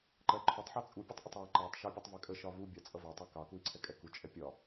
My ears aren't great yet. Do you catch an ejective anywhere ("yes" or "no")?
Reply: yes